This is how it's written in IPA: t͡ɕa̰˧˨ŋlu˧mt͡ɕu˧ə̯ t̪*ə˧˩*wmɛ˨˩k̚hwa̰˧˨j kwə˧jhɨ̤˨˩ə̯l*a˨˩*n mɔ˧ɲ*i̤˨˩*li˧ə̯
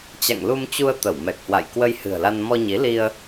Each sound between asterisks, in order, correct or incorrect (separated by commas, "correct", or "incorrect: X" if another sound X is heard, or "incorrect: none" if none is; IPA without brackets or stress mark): correct, incorrect: a˧, incorrect: i˨˦